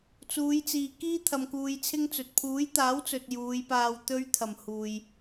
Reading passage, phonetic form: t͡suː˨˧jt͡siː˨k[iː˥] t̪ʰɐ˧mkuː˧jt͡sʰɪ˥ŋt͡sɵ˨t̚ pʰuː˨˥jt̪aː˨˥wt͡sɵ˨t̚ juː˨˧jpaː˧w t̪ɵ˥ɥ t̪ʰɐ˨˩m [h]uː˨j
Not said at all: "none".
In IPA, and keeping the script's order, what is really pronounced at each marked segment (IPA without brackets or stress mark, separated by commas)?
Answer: iː˥, h